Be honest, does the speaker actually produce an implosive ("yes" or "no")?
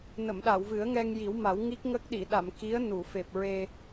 yes